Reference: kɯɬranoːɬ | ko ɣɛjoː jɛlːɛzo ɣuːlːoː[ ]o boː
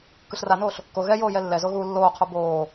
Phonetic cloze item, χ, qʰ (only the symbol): qʰ